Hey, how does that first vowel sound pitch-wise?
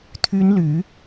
high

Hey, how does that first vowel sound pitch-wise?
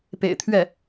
low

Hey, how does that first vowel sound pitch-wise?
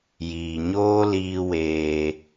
low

